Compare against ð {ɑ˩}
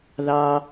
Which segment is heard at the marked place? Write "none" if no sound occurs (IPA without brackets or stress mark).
ɑ˩